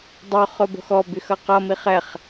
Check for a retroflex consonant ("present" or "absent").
absent